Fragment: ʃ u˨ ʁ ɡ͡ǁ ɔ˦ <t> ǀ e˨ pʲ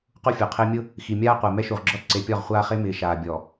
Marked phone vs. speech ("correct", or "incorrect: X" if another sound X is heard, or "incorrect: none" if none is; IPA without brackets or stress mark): correct